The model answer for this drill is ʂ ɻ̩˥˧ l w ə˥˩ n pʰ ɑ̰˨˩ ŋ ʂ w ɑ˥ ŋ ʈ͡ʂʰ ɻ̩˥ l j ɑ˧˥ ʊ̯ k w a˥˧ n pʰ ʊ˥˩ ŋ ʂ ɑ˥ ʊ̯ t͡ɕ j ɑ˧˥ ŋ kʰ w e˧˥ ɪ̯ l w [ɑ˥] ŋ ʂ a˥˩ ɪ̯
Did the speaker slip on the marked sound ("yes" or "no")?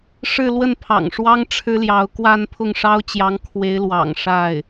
yes